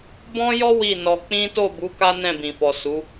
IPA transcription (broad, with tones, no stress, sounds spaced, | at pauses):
b ɔ̃˦ j ɔ˦ w i˦˨ n ɔ˧ k͡p ĩ˦ t o˦˨ b u˨˦ k a˦ n ɛ̃˦˨ b ĩ˨ f ɔ˨ s u˨˦